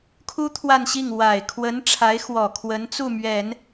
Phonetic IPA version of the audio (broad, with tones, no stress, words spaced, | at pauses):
kʰu˥ t̪ʰwa˥˧nɕi˥˩ŋ wa˨˩ɪ̯ kʰwə˧˥n ʈ͡ʂʰa˧˥ɪ̯xwɔ˨˩ kʰwə˧˥nt͡su˥˩mɥɛ˨˩˦n